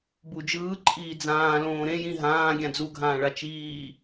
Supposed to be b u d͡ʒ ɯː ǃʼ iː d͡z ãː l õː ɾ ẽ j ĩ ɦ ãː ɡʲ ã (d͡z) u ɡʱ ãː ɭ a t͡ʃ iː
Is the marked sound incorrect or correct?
correct